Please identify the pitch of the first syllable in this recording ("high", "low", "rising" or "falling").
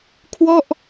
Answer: falling